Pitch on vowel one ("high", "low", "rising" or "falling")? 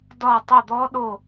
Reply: falling